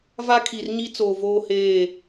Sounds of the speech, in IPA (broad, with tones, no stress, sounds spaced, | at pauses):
v a˦ kʰ i˨ r ɲ i˦ t͡s oː˨ v oː˦ h eː˦˨